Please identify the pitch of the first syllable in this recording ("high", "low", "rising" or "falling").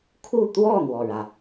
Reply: falling